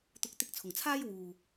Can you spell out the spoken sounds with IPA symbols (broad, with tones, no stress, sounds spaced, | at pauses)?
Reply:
t̪ ʊ˨˥ k̚ t̪ ɪ˧ k̚ t͡sʰ ʊ˨˩ ŋ t͡sʰ aː˥ j w uː˨